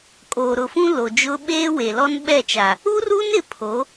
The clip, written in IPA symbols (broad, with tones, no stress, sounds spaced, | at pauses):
kʼ oː˨ ɾ ʊ˨ f ũ˦ l o˨ d͡ʒ ʊ˦ ɓ eː˦ w e˨ l ɔ˦ n ɓ ɛ˦˨ t͡ʃ a˨ | u˦ r u˦ n ɪ˦ pʰ o˨˦